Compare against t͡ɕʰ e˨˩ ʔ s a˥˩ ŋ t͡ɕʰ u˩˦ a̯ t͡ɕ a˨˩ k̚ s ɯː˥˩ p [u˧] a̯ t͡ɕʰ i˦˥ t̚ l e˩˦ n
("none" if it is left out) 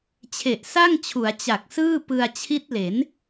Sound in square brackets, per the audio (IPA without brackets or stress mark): ɯ˧